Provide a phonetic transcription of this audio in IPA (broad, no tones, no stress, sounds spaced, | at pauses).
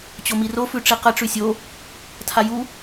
t͡ɕ o m i r o f ʉ ʈ͡ʂ i q ə ʈ͡ʂ ʉ sʲ o | tʰ a j u